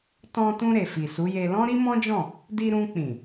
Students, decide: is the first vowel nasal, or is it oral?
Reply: nasal